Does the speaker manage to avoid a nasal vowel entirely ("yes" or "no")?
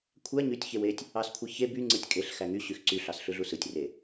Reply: yes